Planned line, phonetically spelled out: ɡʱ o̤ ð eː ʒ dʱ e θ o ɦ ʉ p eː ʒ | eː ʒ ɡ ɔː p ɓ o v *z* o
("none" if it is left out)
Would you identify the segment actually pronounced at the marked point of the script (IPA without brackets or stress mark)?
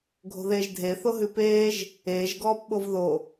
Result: ð